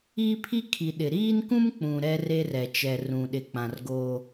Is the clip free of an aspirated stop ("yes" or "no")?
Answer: no